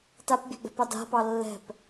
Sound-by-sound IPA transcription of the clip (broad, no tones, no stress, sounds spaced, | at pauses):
t a p bʲ ɛ̤ ɡ͡b ɛ̤ p ɑ d a̤ p ɑ lː ɛ̤ p